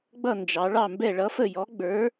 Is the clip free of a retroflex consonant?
no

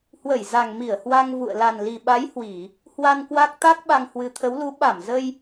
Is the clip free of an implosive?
no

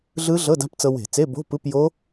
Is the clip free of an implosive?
yes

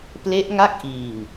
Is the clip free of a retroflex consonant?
yes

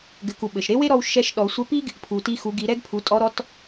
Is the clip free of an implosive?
no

